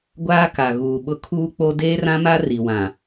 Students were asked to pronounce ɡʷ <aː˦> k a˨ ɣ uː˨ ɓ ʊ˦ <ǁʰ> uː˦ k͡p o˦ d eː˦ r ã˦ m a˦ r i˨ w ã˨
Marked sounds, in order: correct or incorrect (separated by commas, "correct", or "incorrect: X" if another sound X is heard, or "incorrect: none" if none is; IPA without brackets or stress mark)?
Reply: correct, incorrect: kʰ